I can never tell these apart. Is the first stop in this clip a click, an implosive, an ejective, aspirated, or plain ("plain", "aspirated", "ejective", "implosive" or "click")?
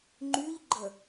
click